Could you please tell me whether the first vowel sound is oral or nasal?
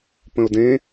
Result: nasal